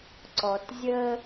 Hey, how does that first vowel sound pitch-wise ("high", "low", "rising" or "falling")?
low